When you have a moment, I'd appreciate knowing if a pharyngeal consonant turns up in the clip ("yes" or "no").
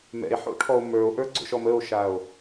yes